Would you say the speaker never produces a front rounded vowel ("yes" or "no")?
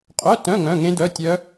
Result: no